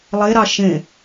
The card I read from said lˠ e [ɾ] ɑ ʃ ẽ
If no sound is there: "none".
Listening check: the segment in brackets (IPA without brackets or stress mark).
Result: ɾ